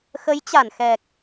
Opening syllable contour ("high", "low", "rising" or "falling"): rising